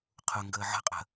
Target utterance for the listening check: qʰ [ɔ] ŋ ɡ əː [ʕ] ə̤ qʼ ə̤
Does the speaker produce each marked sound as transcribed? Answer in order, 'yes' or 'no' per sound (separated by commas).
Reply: no, yes